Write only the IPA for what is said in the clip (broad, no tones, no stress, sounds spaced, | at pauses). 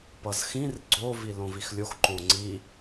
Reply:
p ʌ z x ĩ r ɡ͡ǀ o v i l õ v i x lʲ o x ǃ õ ŋ͡ǀ i